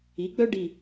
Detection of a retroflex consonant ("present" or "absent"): present